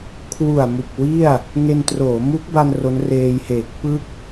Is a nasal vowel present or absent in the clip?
absent